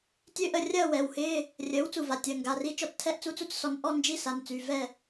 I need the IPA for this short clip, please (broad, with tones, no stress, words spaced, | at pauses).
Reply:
tʲø˧˥ʔə˧˩rʲɐː˥˨ wɛ˩˧˩whɪː˧˥˧ | rʲəː˩˥w t͡su˧˩va˩˧˩tʲəː˩˧˩ ŋɡa˩˧˩ri˧˥ t͡ʃɔ˧˩t͡stʰɛ˧˥˧ʔ t͡su˧˥˧t͡su˥˨t͡ssɔ˩˥n ʔɔ˧˥˧nd͡ʒi˧˥˧ sa˩˧˩nt͡sy˩˧˩vɛ˥˨